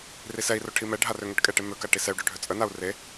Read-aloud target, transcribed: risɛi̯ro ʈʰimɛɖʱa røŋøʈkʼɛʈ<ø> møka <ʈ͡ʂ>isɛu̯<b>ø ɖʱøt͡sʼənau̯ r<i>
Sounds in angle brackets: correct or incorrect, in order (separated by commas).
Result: incorrect, incorrect, incorrect, incorrect